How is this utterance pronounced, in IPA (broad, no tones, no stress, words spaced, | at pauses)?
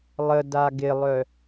lˠə daɡɪlˠœ